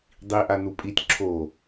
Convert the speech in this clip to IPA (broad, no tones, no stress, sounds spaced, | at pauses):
dˤ i ʔ a n u pʼ i tʲ ǁʰ o